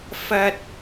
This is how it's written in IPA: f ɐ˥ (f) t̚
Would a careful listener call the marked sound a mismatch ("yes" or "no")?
yes